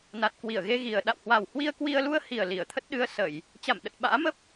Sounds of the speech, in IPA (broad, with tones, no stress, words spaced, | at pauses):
na˨˩t̚kwi˧˩ə̯ɣe˧ɣi˨˩ə̯ ɗa̰˧˨whwa˨˩whwi˧ə̯ kwi˧ə̯lu˧ə̯hi˨˩ə̯ li˧˩ə̯t̪ʰə˦˥t̚ ɗɨ˧ə̯sə˧˩˨j | t͡ɕa˧˩m ɗə˨˩t̚ɓa̰ː˧˥mə˦˥p̚